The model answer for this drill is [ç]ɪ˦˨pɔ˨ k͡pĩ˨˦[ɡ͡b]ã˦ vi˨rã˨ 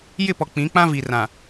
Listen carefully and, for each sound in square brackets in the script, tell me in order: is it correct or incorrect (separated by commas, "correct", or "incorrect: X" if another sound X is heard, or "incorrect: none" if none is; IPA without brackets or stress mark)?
incorrect: j, incorrect: k͡p